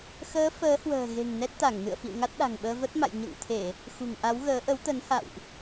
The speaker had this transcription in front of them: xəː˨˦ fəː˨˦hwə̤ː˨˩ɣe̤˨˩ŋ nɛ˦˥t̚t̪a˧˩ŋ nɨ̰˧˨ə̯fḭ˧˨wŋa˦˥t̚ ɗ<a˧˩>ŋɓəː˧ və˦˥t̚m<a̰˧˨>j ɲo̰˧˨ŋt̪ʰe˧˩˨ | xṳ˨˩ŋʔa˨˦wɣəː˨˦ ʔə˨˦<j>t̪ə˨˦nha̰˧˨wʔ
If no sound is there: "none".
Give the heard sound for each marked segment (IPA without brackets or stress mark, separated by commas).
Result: a̤˨˩, a̰˧˨, w